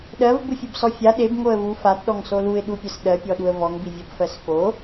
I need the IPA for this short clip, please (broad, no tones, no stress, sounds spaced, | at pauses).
ɗ ɜ v b u fʲ ɯ b s ɔ fʲ a ɗ e b ŋ o ə̯ v u f a t ɗ ɔ ŋ s o l u ɪ̯ ɗ u pʲ ɜ s ɗ ɜ pʲ ɔ ɗ u ə̯ v ɔ ŋ b i vʲ ɔ b f ɜ s f o